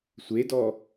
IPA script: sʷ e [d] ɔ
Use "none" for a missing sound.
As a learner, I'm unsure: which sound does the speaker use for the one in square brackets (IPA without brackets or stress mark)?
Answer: d